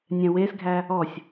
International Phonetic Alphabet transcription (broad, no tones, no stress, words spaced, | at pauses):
nʲɛ̃wesɡʱæ | ɔsʲ